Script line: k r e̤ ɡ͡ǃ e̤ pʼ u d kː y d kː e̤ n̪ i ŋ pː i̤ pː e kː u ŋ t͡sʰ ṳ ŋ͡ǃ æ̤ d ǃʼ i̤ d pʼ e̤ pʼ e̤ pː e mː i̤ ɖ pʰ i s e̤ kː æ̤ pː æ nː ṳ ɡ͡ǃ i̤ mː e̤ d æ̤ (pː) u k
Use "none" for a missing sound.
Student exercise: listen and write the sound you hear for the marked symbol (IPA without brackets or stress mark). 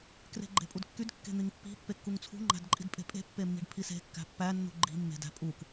pʼ